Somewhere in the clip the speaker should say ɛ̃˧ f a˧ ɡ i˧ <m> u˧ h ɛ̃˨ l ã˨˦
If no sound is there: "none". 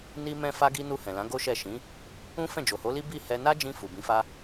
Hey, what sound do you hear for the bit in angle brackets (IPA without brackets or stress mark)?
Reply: n